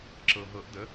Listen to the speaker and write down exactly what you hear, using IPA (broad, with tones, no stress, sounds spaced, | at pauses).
ǁ ɤ˩ ɦ ɤ˨˩˦ ʔ d ə˩˥